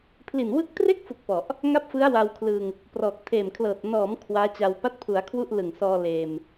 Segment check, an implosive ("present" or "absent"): absent